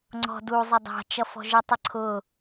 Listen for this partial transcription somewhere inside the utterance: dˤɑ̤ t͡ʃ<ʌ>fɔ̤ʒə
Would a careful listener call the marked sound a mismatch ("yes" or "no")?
no